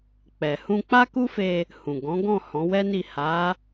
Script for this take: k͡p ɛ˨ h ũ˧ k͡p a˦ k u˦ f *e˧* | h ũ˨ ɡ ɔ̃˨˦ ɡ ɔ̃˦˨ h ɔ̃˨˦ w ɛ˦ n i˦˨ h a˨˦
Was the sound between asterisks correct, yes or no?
yes